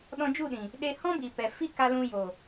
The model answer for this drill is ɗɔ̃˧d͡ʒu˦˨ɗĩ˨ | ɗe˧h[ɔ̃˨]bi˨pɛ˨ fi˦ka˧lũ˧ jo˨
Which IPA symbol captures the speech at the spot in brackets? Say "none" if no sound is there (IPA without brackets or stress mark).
ɔ̃˦